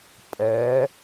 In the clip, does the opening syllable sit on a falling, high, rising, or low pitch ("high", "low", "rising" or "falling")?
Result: rising